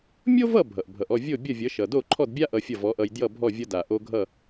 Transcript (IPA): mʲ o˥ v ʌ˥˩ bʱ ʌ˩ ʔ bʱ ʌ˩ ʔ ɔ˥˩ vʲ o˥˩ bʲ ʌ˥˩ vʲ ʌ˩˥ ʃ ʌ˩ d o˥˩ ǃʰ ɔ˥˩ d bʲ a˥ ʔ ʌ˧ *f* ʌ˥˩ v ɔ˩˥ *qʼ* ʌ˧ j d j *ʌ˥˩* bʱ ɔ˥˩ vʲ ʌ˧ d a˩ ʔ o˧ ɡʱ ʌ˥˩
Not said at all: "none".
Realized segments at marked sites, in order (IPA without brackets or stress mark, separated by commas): fʲ, ʔ, ʌ˥˩